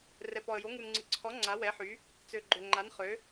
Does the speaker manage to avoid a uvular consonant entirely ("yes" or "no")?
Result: no